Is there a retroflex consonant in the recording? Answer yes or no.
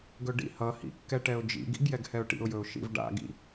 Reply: yes